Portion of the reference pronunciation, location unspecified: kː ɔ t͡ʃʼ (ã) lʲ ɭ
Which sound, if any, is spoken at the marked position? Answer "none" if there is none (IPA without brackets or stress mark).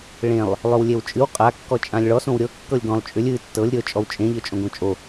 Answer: ã